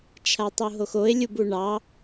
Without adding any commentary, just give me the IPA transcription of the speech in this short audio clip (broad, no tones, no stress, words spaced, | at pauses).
t͡ʃʰatˤuɦoxoɪ̯ lʲubuɳɑ